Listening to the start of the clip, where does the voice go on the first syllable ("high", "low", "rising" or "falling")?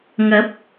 rising